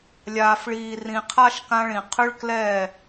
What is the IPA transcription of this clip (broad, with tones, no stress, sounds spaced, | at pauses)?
lʲ aː˨ f ɭ iː˨ r ĩ˨ qʰ a˦ ʃ k ã˦ ɭ ĩ˨ qʰ ʏ˦ ɭ k l ɛː˦˨